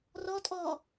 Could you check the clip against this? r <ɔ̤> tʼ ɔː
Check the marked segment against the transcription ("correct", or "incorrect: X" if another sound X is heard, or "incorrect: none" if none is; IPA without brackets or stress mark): incorrect: ɔ